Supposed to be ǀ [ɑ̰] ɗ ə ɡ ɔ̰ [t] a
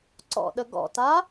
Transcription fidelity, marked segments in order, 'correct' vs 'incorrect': incorrect: ɔ̰, correct

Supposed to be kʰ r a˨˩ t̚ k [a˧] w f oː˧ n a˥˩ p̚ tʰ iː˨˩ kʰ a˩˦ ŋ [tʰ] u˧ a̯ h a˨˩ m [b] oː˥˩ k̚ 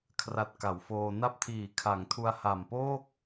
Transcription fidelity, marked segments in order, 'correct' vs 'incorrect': incorrect: a˩˦, correct, incorrect: p

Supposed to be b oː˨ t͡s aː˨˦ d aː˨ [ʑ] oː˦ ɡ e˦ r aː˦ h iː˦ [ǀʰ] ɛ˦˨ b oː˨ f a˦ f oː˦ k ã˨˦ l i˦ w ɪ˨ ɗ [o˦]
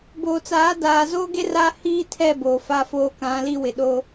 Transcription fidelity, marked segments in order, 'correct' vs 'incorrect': incorrect: z, incorrect: tʰ, correct

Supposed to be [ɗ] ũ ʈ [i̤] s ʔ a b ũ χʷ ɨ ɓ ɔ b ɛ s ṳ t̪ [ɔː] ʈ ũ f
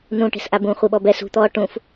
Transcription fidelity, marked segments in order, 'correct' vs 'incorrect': incorrect: n, incorrect: e̤, correct

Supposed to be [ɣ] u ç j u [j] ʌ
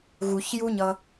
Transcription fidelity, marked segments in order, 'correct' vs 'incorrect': correct, incorrect: ɲ

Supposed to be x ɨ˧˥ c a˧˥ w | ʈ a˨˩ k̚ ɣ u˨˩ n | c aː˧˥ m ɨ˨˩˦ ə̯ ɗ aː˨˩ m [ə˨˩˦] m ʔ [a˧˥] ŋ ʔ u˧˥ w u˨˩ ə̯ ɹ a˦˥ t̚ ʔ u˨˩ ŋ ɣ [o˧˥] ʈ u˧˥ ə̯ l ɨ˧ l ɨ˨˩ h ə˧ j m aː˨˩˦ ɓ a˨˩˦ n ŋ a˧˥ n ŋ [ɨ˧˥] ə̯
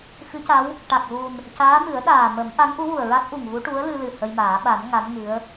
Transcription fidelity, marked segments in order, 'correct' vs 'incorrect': correct, correct, incorrect: u˧˥, correct

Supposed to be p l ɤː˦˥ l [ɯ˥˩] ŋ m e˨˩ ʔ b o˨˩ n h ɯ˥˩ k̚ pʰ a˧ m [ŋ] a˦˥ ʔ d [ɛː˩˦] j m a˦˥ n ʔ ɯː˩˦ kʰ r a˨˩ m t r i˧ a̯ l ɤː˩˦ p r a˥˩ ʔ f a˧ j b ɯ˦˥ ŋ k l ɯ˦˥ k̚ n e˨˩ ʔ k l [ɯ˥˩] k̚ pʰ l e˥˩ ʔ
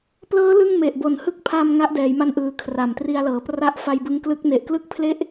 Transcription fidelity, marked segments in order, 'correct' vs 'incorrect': correct, correct, correct, correct

